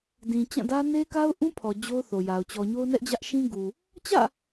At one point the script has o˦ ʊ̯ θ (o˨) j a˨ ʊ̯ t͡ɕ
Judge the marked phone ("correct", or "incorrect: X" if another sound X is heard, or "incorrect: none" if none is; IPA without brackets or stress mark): correct